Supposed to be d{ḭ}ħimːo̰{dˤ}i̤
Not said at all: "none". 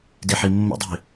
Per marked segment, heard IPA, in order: i, dˤ

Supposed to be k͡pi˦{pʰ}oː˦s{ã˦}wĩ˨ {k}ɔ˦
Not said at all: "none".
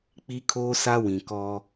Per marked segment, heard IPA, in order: kʰ, a˦, k

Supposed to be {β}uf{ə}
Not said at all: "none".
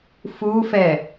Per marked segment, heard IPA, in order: f, ɛ

